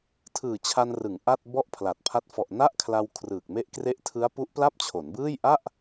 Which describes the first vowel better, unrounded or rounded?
unrounded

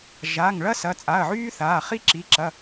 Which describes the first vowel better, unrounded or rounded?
unrounded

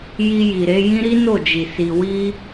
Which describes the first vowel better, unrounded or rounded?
unrounded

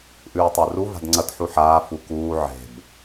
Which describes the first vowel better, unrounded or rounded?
rounded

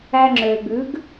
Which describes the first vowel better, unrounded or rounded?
unrounded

